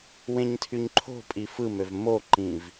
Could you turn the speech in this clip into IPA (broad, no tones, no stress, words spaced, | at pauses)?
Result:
wẽɲtʰyɲǃʰo̤pʼi fɯmøv moǃĩv